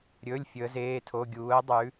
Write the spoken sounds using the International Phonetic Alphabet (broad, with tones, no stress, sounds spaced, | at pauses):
ɾʲ ɵ˩˧˩ lʲ fʲ ɵ˩˧ ə̯ z eː˩˧˩ tʰ o˩˧˩ ɡʲ uː˩˧ ə̯ dˤ ʉ˩˧